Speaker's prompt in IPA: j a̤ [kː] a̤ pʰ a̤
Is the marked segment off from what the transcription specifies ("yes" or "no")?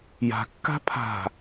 no